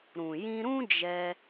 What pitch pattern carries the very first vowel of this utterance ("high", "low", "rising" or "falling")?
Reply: low